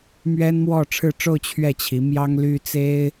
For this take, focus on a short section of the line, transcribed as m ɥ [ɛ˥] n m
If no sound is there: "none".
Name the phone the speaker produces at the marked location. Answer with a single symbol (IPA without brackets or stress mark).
ɛ˥